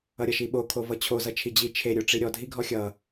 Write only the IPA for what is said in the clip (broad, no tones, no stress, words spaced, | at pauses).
ʌɾʲʌʃiɓo kʰovʌt͡ɕʰo zʌt͡ʃʰid͡ʑi t͡ʃʰe ɾʲoʈ͡ʂiɾʲɔ dʱiɡʱɔxʲʌ